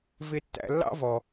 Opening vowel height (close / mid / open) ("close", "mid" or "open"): close